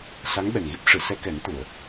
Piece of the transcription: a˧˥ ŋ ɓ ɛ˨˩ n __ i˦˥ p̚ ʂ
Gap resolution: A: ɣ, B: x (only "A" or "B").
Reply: A